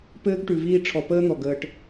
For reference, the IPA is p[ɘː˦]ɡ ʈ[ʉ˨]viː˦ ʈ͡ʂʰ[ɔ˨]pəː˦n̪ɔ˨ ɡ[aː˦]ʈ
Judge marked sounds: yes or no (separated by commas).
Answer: yes, yes, yes, no